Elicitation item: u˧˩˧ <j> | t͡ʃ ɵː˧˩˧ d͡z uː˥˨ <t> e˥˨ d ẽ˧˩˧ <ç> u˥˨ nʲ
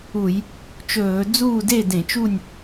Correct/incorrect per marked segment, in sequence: correct, incorrect: d, incorrect: t͡ʃ

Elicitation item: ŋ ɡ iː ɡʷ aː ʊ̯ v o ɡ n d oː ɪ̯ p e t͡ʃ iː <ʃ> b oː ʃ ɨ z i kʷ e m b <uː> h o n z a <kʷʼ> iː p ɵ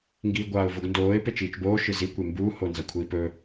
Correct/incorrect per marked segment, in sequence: incorrect: t͡ʃ, correct, incorrect: kʷʰ

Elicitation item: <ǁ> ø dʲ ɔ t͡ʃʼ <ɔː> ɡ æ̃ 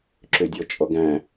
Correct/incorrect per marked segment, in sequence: correct, incorrect: ɔ

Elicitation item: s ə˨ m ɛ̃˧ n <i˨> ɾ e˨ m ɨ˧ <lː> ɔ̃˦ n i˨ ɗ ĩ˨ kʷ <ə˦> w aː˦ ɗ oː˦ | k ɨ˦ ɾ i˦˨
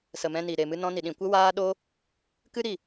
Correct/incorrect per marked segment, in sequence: correct, incorrect: n, correct

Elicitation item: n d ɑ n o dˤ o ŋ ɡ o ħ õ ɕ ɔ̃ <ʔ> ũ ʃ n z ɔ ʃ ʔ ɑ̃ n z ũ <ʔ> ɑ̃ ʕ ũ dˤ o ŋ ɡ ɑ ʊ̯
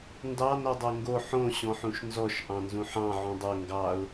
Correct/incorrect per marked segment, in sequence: incorrect: ħ, incorrect: ħ

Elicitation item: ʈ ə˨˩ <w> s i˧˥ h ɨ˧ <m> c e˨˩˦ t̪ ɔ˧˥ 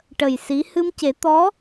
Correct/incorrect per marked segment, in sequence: incorrect: j, correct

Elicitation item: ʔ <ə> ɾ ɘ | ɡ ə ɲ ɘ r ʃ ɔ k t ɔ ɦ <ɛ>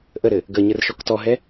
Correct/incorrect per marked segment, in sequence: correct, correct

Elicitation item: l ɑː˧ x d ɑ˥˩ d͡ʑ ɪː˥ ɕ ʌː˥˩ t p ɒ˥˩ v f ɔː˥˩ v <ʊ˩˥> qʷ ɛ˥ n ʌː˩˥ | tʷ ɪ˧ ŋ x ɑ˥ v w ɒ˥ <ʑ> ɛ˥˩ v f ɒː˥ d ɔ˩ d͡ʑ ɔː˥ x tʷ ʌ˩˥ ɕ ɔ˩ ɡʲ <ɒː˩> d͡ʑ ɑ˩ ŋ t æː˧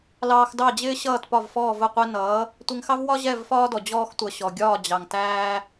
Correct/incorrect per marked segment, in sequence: incorrect: ʊ˥˩, correct, incorrect: ɒː˥˩

